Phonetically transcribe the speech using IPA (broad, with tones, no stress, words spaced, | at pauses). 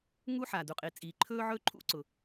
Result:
ŋu˥ħa˩ du˩qʼi˩t͡sʼiː˩ ǃʰɵː˥ʕɵ˥ǃʰṵ˥ǀʊ˩